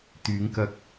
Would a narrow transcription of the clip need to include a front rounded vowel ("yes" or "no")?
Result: yes